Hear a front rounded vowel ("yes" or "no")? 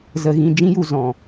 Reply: no